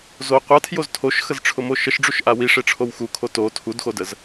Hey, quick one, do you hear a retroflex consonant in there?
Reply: yes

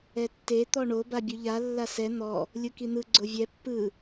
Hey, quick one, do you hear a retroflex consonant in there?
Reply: yes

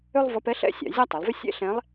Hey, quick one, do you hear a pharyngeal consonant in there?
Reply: no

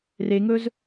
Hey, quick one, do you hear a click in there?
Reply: no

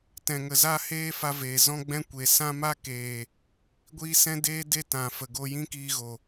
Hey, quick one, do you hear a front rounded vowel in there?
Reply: no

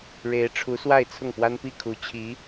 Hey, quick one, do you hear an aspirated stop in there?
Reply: yes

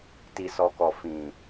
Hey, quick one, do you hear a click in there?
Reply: no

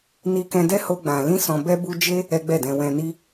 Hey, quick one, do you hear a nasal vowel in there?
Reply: yes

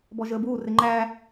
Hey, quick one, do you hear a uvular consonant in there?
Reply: no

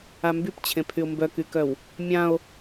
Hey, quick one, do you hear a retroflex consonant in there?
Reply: no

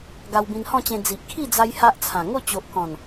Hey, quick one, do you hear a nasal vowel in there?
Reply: yes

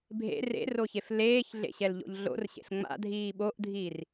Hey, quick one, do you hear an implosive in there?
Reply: yes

